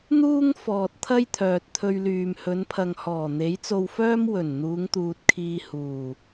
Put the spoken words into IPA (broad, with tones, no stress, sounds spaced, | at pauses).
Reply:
n̪ uː˥ ŋ f ɔː˨ t̚ t̪ʰ ɐ˥ j t̪ʰ œː˨ t̚ t̪ʰ ɵ˧ ɥ l yː˨ m h ɵ˨˧ n pʰ ɐ˨ ŋ h ɔː˨˩ n̪ e˨˥ j t͡s o˧ w f œː˥ m w ɵ˨˩ n n̪ uː˨˧ ŋ t̪ uː˨ t̚ kʰ iː˧ h uː˨˩